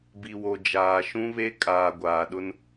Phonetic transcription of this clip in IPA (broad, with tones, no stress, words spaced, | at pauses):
bi˨wo˨ d͡ʒaː˨ʃũ˦βe˦ kʼaː˨ɡʷaː˨ɗʊ˦n